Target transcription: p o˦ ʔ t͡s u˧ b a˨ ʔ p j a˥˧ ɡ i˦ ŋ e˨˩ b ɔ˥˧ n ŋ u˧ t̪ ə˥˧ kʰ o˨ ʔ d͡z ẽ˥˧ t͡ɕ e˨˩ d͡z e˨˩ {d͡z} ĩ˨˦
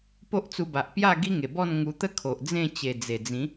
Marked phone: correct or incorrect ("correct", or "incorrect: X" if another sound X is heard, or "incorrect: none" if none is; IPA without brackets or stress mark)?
correct